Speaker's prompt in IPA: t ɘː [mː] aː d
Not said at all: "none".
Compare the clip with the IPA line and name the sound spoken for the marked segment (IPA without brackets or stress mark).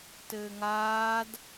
ŋ